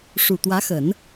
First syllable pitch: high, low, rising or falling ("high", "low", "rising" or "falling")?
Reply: low